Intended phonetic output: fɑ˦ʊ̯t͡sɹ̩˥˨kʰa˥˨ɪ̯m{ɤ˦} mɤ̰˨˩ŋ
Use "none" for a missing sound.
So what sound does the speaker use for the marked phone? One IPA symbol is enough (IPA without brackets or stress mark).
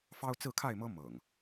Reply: ɤ˦